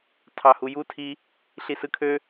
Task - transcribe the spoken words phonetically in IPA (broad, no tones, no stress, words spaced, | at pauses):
tʰɑhuju tʰi | ɬisɯkʰø